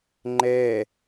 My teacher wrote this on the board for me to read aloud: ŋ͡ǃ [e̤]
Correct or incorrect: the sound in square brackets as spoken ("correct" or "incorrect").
incorrect